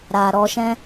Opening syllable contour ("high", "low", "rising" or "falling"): low